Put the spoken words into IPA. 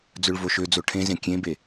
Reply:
d͡z ɵ ɭ v o ʃ ø d͡z o ʈʰ ẽ z ẽ kʲ ẽ b e

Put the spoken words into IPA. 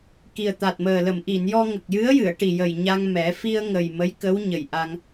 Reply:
k i˨˩ ə̯ t̪ a˨˩ t̚ m əː˨˩ l ə˨˩˨ m ʔ i˨˩˨ n j ɔ˧ ŋ ə˨˩ k̚ j ɨ˧˥ ə̯ j ɨ˨˩˨ ə̯ ʈ i˨˩ j ə˨˩ j ɲ a˧ ŋ m ɛ˨˩˦ f i˧ ə̯ ŋ ə˨˩ j m ə˧˥ j k ə˧˥ w ɲ ə˨˩ j ʔ a˧ ŋ

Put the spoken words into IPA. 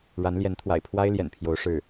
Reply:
ɻ a˧˥ n l j ɛ˧˥ n t̪ʰ w a̰˨˩ ɪ̯ pʰ w a˥ ɪ̯ l j ɛ̰˨˩ n pʰ j o˧˥ ʊ̯ ʂ ɻ̩˥˩

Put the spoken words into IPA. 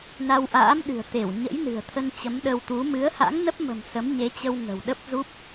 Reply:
n a˧ w ʔ a̰ː˧˥ m ɗ ɨ̤˨˩ ə̯ t̪ e˧˩ w ɲ ə̰˧˥ j n ɨ̤˨˩ ə̯ t̪ʰ ə˧ n t͡ɕ ə˨˦ m ɗ ə˧ w t̪ u˨˦ m ɨ˨˦ ə̯ h a̰˧˥ ŋ n ə˦˥ p̚ m ə̤˨˩ m s ə˨˦ m ɲ e˨˦ t͡ɕ ə˧ w ŋ ə̤˨˩ w ɗ ə˦˥ p̚ z u˦˥ p̚

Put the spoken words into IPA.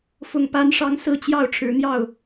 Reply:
f ʊ˥˨ ŋ p a˦ n ʂ ɑ˦ ŋ s ɹ̩˥˨ t͡ɕ j ɑ˥˨ ʊ̯ ʈ͡ʂʰ ɻ̩˨˦ n̪ j ɑ˥˨ ʊ̯

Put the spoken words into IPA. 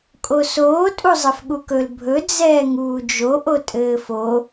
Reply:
kʼ o s oː tʼ u zˤ ɘ f ɠ u k ɵ l bʱ ɵ d͡z ɛː ŋ uː d͡ʒ o ʔ o tʼ ɘː f o

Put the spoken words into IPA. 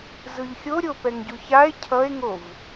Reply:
z ɯ ʎ xʲ o ɾʲ o p ɛ ŋ ɟ u ç a e̯ cʰ ʌ e̯ ŋ o v

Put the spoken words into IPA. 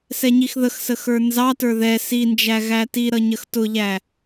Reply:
s ɛ ɲ i x ð ə x s ə x ə˞ n z ɑ t ə˞ ð ɛ s i n d͡ʒ æ ɣ æ t i ɾ ʌ ɲ ə x t ʊ ʎ æ

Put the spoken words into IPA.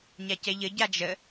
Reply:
ɲ a c ɛ ʎ ə ɟ a d͡ʒ ə

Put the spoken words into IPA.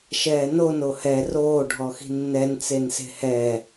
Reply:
ʃ ɛː n o n o h ɛ r oː ɖʱ ɔ x i̤ nː ɛ n t͡s e n s e̤ h ɛː

